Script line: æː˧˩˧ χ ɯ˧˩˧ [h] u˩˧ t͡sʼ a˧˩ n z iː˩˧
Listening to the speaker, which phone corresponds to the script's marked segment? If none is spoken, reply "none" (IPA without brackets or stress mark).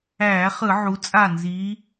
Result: ʕ